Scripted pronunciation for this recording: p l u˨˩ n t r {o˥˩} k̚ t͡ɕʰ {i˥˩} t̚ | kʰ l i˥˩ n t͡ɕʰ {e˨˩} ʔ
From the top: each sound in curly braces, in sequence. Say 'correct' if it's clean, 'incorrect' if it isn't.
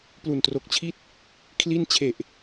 incorrect: o˨˩, correct, correct

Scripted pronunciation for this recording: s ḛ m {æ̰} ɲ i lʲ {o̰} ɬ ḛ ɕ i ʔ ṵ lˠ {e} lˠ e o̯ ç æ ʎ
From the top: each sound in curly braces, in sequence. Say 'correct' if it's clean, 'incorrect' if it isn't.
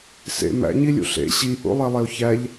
correct, incorrect: ṵ, correct

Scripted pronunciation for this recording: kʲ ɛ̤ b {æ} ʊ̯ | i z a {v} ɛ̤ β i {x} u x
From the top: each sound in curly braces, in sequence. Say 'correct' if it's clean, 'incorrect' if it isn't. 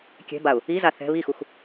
incorrect: a, incorrect: θ, correct

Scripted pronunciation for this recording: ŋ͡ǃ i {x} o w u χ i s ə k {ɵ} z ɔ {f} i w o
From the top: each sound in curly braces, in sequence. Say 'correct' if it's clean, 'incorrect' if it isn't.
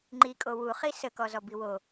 incorrect: kʼ, incorrect: ɔ, incorrect: b

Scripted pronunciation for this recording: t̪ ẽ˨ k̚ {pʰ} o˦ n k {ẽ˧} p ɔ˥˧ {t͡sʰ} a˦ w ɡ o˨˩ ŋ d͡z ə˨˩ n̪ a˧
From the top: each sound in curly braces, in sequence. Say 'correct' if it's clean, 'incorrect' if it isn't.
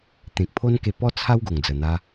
correct, incorrect: e˧, correct

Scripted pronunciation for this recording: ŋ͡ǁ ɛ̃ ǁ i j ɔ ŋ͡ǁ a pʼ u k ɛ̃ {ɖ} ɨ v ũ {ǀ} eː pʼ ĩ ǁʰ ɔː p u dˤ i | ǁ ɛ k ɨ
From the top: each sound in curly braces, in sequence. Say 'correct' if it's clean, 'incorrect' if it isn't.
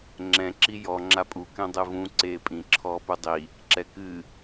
incorrect: dˤ, correct

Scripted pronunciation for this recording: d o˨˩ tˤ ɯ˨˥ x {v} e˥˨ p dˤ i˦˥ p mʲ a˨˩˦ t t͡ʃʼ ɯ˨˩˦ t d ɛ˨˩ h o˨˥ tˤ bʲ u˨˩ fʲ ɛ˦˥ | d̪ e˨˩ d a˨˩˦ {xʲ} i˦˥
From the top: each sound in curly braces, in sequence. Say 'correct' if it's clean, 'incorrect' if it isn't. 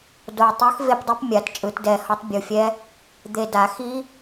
correct, incorrect: x

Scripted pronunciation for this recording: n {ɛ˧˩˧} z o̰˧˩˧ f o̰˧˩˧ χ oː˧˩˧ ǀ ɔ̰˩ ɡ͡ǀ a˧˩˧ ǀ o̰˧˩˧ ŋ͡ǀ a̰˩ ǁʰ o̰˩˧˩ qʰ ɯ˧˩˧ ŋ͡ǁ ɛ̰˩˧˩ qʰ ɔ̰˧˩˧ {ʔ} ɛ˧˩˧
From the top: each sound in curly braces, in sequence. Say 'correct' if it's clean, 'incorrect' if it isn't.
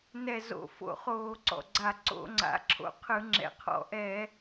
incorrect: ɛ˧˩, correct

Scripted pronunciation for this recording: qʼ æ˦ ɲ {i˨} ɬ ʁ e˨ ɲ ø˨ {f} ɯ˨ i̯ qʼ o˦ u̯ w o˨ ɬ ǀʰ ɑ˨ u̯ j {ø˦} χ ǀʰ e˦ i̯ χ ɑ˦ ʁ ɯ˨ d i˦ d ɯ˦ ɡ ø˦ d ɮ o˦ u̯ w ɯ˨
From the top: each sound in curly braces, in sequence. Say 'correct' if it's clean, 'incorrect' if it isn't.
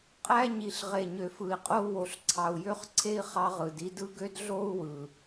correct, correct, correct

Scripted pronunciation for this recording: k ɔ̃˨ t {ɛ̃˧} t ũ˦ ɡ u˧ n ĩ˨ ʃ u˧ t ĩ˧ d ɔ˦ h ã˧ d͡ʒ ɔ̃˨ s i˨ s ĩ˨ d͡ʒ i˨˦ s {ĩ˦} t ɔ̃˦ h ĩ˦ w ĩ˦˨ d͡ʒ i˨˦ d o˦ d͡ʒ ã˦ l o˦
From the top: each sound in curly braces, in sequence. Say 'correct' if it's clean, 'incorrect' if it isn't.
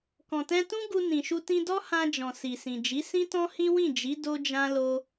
correct, correct

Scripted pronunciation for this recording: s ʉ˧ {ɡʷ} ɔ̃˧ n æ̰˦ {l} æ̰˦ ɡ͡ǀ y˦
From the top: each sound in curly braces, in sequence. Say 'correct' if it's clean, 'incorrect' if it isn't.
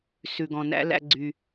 incorrect: ɡ, correct

